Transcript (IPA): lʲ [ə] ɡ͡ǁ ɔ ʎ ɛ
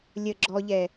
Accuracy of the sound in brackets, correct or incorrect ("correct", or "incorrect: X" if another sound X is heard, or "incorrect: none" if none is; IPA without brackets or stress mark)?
correct